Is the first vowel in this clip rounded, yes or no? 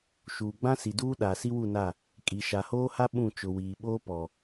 yes